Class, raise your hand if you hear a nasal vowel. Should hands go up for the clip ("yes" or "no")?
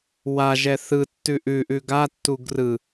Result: no